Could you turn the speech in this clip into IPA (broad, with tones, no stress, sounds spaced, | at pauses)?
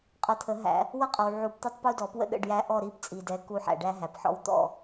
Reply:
qʼ ʌ˨˦ t̪ʰ ə˨˩˦ ɦ æ̰˨˩˦ | w ʌ˦ qʼ ʌ˨ w ʕ u˨˩˦ p t̪ u˦ tˤ p u˦ d ɔ˨˩˦ p w ə̰˥˨ ɗ ə̰˥˨ ɖ j æ˦ ʔ ɔ˥˨ ɾ i˥˨ p t͡sʼ i˨ d ɛ˨˦ k u˦ ħ æ̰˨ ɖ æ˦ ɦ æ˨ p ħ ɔ̰˦ w t̪ ɔ̰˥˨